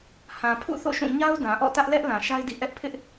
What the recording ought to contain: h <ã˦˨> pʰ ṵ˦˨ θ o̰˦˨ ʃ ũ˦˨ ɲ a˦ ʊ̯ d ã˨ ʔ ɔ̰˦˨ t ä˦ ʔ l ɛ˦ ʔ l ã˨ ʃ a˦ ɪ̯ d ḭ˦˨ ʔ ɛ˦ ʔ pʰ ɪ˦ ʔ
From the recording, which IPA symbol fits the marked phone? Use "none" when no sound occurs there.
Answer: ã˨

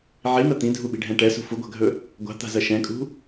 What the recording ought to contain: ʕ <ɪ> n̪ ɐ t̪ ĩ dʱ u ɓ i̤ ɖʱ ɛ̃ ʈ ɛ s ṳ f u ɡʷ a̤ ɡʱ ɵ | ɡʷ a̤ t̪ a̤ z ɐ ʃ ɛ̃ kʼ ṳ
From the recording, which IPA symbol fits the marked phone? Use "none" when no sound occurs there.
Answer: i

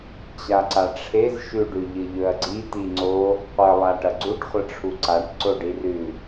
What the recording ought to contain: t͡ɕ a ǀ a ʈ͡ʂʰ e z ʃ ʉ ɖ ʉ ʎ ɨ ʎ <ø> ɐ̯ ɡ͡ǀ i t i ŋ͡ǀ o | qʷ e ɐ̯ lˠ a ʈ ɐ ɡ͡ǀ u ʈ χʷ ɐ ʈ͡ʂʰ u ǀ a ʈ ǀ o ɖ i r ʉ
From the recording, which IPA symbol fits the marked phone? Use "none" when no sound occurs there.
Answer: ɵ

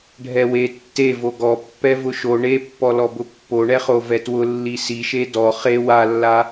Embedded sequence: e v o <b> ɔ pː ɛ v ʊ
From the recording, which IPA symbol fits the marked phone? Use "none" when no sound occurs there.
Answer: ɡ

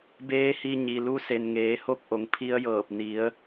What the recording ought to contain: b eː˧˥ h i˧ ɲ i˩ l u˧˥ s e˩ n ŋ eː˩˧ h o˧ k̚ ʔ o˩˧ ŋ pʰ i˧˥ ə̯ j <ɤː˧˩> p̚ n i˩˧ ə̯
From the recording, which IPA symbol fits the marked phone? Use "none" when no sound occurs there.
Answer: ɤː˧˩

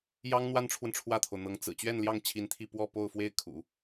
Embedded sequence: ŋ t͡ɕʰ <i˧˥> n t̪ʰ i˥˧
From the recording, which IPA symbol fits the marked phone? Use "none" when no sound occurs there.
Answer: i˧˥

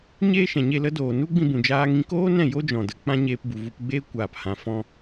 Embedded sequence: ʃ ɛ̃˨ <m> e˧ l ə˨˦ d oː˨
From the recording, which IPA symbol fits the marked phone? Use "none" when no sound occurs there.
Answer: ɲ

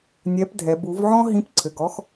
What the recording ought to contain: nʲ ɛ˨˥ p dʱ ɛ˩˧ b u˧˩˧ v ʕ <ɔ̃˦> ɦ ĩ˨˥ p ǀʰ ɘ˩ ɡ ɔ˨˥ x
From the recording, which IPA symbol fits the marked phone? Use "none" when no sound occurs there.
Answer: ɔ̃˦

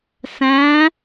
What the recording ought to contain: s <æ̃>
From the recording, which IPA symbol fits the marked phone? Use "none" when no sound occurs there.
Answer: æ̃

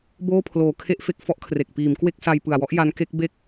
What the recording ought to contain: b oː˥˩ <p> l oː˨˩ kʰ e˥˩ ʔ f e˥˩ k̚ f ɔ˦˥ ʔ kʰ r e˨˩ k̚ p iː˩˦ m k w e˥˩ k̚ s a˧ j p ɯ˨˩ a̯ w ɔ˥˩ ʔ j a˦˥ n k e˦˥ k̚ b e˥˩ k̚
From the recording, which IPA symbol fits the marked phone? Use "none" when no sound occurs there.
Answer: pʰ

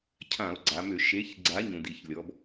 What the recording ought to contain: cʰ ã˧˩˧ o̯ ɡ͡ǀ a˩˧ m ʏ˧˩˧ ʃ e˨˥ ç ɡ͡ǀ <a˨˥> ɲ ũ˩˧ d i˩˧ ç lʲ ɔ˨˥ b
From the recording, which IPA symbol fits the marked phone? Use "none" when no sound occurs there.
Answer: a˨˥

